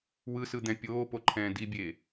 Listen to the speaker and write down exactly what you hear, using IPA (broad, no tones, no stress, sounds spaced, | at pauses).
w ɯ s ɯ d̪ ɛ̃ pʲ oː p o ǃʰ ɛ̃ː d i bʲ eː